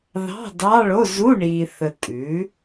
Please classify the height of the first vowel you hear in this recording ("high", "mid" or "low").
low